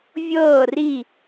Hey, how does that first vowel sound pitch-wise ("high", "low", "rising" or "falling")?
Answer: falling